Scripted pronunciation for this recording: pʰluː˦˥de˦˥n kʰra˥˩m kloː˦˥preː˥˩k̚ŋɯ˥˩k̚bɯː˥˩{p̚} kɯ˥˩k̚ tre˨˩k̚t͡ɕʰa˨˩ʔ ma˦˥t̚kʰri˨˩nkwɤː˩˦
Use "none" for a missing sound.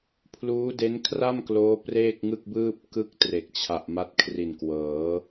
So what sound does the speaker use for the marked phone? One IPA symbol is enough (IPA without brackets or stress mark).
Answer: p̚